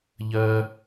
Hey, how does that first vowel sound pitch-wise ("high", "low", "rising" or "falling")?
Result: high